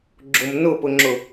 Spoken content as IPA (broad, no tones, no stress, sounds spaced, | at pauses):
ɡ͡ǁ ʊ m n ʊ p ʊ ŋ͡ǁ ʊ